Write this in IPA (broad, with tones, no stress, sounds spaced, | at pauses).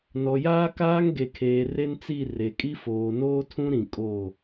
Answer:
n ɔ˨ j aː˦ k aː˦ ŋ ɡ e˨ kʰ eː˨ r e˦ n t͡s i˦˨ r e˨ kʼ i˦ f oː˨ n oː˦ tʰ ũ˦ ɾ ĩ˨ kʼ oː˦˨